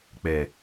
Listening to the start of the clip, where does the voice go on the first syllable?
low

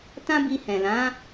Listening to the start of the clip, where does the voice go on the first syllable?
high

